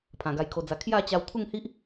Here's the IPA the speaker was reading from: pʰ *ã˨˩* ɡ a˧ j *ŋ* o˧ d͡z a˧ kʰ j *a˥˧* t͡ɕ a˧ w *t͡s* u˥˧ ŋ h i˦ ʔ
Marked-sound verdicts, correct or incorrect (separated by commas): correct, incorrect, correct, incorrect